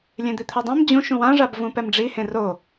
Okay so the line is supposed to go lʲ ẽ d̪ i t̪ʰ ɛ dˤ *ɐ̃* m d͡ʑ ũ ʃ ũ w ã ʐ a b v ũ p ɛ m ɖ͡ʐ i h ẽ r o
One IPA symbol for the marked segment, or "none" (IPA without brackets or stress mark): ã